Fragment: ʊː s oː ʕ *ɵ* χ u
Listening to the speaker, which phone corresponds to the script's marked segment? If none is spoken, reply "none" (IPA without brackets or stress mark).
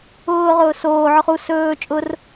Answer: ʊ